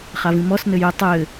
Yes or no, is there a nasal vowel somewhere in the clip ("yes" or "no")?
yes